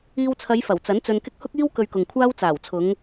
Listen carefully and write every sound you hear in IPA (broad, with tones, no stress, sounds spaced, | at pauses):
iː˧ w t͡sʰ ɐ˨˧ j f ɐ˨˩ w t͡s ɐ˨˥ n t͡s ɵ˧ n k ɪ˥ k̚ h ʊ˥ k̚ iː˥ w k ɵ˧ ɥ k ʊ˨ ŋ kʷʰ aː˥ w t͡s aː˨˩ w t͡sʰ ʊ˨˧ ŋ